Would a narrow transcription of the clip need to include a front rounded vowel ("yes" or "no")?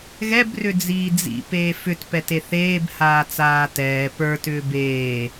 yes